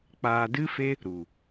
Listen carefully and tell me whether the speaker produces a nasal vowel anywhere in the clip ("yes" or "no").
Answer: no